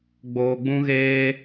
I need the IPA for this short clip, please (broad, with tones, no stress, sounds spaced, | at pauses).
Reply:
ɡ͡b oː˧ ɡ͡b ũ˦ ɣ eː˦